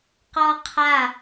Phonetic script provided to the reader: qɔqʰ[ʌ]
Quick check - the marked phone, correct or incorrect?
incorrect: a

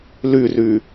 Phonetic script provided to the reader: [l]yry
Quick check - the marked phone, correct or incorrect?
correct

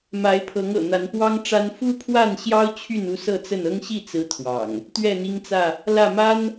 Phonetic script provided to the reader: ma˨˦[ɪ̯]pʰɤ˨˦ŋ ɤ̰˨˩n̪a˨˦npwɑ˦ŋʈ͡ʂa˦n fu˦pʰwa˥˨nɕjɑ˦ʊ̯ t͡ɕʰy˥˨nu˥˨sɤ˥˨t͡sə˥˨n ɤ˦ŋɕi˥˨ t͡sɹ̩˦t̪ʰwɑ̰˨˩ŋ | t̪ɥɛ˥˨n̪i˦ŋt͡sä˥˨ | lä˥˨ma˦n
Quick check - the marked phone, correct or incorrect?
correct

